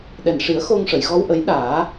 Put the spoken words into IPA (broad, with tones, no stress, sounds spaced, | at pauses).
ɗ ɛ˨˩ n ʂ i˨˩˦ ə̯ x o˧ ŋ ʂ ə˨˩˨ j ɣ ɔ˧ w ʔ ə˨˩˦ j ɗ aː˨˩˦